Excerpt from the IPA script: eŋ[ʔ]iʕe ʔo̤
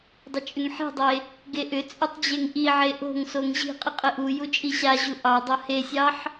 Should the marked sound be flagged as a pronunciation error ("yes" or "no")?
no